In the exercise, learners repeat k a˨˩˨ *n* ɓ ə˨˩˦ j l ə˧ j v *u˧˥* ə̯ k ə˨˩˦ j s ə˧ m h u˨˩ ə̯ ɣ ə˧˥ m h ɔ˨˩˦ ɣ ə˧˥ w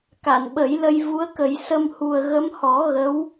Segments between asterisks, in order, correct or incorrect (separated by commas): correct, correct